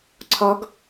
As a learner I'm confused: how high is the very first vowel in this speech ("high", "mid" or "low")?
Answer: low